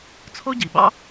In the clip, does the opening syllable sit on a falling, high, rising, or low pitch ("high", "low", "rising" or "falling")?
high